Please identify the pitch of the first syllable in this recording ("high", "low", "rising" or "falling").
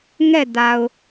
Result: falling